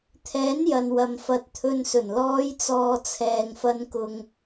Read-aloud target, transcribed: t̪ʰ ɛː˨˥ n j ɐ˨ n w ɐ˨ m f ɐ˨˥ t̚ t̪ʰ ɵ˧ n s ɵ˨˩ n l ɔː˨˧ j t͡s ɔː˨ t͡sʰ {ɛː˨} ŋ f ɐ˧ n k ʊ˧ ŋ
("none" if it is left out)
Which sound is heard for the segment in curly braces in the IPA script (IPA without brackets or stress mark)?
ɛː˨